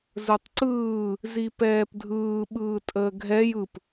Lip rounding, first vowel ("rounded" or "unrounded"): unrounded